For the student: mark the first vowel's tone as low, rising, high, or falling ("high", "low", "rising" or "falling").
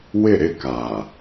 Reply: falling